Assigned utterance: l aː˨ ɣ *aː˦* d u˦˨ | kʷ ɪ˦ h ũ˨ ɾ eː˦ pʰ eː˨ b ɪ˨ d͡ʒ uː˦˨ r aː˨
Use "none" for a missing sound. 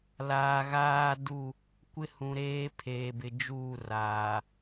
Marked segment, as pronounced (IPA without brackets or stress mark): aː˦